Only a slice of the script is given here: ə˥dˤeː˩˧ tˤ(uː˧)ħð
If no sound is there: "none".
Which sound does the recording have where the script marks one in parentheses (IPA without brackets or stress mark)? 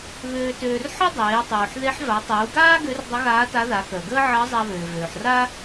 uː˩